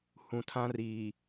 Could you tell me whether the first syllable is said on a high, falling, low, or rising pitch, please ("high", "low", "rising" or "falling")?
low